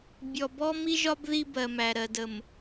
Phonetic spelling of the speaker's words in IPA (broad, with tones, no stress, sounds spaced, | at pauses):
bʲ ɔ˨ b ɔ˦ m i˦ ʒ ɒ˦ b ð i˦ b ɜ˨ m æ˨ ɾ ɜ˨ d ə˨ m